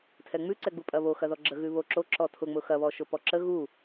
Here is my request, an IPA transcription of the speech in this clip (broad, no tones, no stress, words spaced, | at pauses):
tʰɛŋ͡mʉǀɛ ɡ͡bupʼɐβo xɐðɔɡ͡ǁə ɣʉβoǁo ǁɔtʰʊŋ͡mʊ xɐβɔʃʊ pɔǁə ɣu